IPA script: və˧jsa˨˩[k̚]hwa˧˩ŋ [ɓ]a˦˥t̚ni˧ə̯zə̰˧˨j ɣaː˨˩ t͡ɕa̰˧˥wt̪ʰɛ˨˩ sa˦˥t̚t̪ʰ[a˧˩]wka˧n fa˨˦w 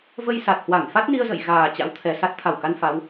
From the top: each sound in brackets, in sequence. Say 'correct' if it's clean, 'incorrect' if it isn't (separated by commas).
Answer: incorrect, incorrect, correct